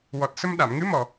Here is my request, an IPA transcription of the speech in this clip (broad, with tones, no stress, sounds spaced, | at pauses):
w ɔ˨˩ t̚ s ə˧ m ɗ a˨˩˨ m ŋ ɨ˧˥ m ɔ˨˩